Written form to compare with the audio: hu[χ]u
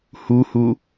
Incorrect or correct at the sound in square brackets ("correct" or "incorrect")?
incorrect